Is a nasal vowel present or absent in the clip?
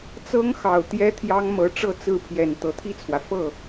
absent